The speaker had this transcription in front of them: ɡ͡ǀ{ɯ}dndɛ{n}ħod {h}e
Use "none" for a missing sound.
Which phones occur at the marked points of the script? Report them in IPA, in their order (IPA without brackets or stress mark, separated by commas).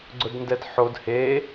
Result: ʊ, d, h